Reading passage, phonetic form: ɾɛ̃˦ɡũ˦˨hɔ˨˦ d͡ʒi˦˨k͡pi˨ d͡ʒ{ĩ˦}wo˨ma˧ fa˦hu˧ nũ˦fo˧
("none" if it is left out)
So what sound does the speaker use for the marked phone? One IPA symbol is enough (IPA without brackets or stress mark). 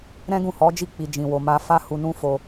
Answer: ĩ˨